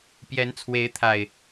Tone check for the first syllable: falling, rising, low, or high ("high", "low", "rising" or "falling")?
rising